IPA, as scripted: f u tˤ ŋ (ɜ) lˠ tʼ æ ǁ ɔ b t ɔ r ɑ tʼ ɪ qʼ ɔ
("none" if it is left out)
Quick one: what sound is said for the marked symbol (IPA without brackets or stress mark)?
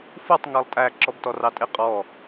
ɜ